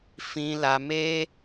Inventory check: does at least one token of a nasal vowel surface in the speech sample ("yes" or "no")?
yes